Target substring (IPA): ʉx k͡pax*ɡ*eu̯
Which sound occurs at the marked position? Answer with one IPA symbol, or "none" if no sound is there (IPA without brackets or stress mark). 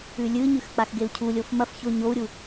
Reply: ɡ